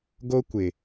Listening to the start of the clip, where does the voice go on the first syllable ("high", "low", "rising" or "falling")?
high